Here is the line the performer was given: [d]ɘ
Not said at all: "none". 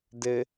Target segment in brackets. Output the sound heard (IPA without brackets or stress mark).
d